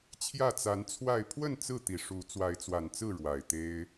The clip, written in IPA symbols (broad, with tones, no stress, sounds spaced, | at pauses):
t͡ɕʰ j ä˥˨ t͡s a˨˦ n t͡sʰ w a˥˨ ɪ̯ pʰ w ə˥˨ n t͡s ɹ̩˥˨ t̪ i˨˩ ʂ u˨˦ t͡s w a˨˦ ɪ̯ t͡s w a˨˩ n t͡s ɹ̩˥˨ ɻ w a˨˩ ɪ̯ t̪ e˦ ɪ̯